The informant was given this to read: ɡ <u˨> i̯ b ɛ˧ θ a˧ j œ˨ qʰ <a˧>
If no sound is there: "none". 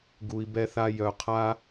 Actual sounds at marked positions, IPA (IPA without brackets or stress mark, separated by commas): u˨, a˦